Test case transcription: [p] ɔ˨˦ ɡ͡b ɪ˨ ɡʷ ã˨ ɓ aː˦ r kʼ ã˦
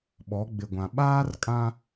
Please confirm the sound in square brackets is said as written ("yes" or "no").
no